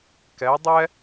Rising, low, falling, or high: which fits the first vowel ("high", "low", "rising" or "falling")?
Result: rising